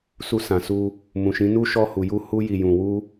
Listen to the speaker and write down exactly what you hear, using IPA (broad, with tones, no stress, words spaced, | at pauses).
su˧sã˨su˧ | mũ˨ʃĩ˨˦nu˦ ʃɔ˧hu˨ju˧ hu˧ji˨jũ˨wu˧